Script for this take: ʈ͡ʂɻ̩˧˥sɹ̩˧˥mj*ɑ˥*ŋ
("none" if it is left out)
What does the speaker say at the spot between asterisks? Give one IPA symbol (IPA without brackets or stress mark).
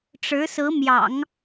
ɑ̰˨˩˦